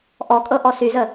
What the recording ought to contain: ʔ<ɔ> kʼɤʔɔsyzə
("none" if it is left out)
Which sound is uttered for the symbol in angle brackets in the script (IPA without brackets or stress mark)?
ɔ